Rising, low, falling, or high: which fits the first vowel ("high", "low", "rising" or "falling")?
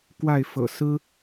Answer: falling